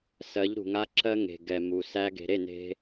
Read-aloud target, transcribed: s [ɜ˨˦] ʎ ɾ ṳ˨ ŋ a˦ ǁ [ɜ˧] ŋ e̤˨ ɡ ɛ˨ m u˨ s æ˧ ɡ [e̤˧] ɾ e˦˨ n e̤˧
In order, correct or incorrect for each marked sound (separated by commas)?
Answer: correct, correct, incorrect